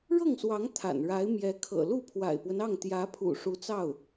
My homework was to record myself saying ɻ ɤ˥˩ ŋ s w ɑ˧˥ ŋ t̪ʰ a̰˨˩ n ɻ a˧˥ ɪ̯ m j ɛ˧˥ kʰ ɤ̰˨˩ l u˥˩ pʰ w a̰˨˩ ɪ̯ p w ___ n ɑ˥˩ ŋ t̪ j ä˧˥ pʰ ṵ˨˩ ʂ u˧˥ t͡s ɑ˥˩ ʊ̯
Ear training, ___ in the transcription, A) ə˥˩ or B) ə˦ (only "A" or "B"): B